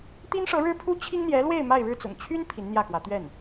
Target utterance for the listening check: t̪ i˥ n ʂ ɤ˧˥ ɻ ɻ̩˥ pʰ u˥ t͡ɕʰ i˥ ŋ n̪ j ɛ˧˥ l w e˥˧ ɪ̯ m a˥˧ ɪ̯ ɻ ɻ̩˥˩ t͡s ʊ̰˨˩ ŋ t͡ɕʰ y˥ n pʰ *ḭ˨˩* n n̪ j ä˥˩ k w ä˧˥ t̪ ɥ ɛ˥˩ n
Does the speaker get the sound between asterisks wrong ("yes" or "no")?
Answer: yes